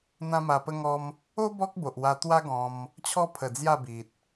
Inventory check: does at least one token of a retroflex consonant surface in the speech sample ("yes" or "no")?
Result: no